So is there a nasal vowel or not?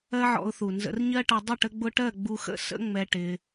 no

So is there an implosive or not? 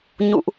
no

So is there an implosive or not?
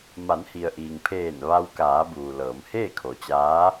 no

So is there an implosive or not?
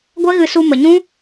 no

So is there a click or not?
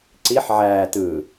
yes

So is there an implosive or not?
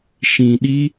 yes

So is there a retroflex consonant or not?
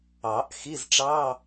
yes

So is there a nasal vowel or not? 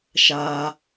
no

